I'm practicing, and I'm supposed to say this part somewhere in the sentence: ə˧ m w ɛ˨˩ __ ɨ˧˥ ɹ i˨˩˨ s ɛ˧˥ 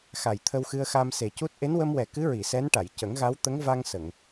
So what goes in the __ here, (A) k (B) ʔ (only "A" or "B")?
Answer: A